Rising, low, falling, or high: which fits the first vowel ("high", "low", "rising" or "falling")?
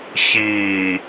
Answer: low